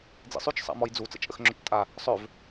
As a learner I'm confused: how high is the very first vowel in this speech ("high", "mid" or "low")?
high